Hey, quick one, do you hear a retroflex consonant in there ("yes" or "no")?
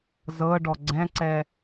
yes